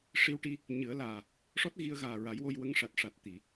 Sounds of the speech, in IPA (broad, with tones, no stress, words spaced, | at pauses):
ʂi˧wʈi˧ | ɲɨ˨˩˦ə̯laː˨˩ | ʂɔ˦˥t̚ɣi˧ə̯ɣaː˨˩ ɹa˨˩˦jwo˧jwə˧˥ŋʂa˨˩t̚ ʂa˨˩t̚ t̪i˨˩˨